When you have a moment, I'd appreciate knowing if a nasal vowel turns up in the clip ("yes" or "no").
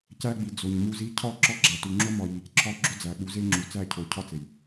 no